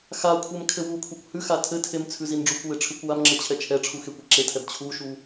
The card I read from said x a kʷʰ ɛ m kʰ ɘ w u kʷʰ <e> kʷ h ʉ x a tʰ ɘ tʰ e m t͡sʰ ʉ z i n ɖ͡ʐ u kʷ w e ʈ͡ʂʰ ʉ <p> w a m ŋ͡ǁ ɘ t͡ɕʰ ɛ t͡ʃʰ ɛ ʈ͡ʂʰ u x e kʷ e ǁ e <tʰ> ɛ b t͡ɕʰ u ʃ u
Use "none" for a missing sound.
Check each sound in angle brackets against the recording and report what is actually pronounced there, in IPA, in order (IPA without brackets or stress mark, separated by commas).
e, kʷ, tʰ